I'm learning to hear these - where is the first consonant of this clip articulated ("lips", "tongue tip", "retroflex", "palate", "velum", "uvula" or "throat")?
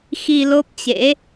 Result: velum